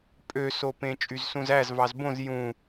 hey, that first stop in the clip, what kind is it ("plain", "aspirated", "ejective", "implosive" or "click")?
ejective